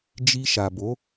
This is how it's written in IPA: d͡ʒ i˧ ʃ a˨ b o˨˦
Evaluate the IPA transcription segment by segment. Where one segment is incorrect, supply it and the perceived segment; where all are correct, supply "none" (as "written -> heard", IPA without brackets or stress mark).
none